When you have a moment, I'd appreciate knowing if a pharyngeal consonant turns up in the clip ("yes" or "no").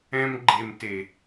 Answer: no